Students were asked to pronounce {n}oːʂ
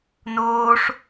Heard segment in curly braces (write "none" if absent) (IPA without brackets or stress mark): n